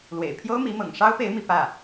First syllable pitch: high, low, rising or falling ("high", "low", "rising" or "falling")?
low